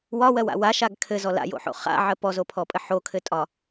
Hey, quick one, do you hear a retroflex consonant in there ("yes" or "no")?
no